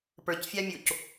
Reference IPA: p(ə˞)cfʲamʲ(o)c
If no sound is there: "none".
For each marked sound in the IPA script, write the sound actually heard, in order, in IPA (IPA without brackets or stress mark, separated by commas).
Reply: ə˞, o